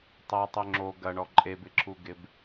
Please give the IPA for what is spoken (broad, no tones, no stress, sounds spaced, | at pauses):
tˤ ɐ tˤ ʏ ŋ͡ǁ o ɡ ɐ ɳ ɔ ǃʼ e b ɪ ǁʰ u ɡ ɪ b